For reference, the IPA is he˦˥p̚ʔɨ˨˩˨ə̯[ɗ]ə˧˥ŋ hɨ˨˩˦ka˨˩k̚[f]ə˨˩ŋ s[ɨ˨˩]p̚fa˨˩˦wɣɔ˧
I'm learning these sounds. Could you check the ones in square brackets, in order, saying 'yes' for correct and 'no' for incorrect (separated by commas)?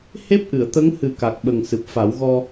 no, no, yes